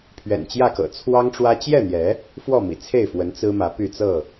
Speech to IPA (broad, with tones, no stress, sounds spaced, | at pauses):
pʰ ɥ ɛ̰˨˩ n t͡ɕ j ä˥˨ k ɤ̰˨˩ t͡sʰ w ɑ˦ ŋ ʈ͡ʂ w ä˦ t͡ɕ j ɛ˥˨ n̪ j ɛ˨˦ | f w ɔ˥˨ m ḭ˨˩ t͡sʰ e˥˨ ɪ̯ f w ə˨˦ n t͡s ɹ̩˦ m ä˨˦ p y˥˨ t͡s ɤ˥˨